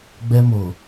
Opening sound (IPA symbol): ɡ͡b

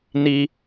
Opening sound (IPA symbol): n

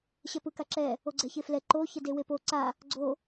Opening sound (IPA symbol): ɕ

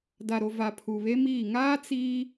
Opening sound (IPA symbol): d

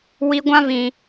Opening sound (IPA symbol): w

